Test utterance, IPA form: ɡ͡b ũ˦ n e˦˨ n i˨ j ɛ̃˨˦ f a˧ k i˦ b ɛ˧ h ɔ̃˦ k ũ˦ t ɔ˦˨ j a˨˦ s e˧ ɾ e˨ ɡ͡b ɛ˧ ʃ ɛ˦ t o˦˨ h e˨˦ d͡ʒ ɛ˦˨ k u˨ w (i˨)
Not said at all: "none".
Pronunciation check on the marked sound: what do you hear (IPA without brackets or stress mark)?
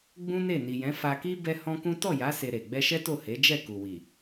i˨